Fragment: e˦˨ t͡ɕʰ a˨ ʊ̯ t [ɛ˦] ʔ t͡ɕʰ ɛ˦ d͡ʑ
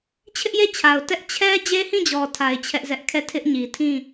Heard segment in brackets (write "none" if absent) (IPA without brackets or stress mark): ɛ˦